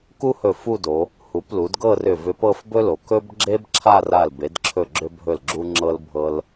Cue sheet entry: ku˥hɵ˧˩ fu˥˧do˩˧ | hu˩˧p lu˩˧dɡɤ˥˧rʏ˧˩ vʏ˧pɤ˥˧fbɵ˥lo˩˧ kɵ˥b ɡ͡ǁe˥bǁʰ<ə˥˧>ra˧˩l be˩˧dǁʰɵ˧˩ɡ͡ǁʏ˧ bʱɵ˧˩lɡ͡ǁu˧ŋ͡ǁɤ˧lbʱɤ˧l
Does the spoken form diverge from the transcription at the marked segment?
yes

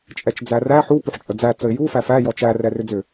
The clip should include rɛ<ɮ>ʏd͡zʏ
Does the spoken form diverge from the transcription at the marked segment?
yes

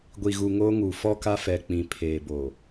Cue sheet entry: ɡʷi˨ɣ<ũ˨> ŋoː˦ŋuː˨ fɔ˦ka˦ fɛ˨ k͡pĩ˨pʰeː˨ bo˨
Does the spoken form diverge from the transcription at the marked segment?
yes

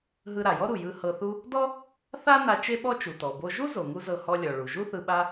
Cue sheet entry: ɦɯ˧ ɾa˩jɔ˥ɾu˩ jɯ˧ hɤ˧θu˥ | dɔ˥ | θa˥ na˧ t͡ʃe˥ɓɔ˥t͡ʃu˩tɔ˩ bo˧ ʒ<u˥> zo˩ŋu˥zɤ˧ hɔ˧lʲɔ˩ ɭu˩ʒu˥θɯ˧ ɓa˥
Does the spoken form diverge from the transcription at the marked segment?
no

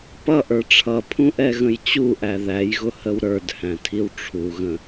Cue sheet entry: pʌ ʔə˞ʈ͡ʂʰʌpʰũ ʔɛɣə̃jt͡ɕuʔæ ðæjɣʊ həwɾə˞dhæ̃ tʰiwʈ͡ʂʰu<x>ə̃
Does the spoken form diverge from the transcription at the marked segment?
yes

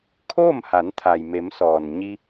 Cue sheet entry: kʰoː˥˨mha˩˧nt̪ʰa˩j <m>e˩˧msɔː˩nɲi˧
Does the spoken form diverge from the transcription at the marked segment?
no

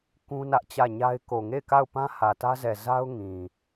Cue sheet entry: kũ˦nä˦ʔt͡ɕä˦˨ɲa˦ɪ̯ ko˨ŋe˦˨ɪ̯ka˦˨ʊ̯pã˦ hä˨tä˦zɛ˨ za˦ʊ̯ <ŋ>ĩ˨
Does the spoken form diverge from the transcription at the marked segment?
no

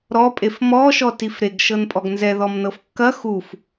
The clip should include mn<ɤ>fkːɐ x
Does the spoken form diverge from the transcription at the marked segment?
no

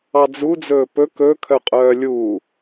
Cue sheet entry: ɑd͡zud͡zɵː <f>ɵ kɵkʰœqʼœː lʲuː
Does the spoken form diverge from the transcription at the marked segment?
yes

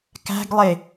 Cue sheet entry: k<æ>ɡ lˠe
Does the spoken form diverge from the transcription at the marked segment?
yes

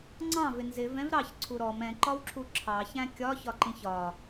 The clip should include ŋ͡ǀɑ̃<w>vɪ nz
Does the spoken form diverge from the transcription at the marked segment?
yes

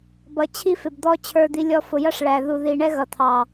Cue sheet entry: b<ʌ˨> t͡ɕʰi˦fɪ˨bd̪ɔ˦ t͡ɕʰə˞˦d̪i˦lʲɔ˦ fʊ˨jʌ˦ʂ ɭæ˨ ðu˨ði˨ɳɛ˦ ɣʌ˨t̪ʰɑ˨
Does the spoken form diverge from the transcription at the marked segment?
no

